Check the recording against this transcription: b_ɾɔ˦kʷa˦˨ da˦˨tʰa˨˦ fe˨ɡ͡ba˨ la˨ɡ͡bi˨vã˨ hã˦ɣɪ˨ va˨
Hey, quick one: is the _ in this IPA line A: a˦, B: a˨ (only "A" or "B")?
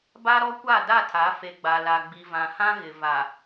A